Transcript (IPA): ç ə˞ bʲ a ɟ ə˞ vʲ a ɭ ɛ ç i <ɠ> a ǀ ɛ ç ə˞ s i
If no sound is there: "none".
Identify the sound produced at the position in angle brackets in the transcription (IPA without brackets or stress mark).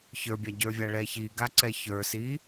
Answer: ɡ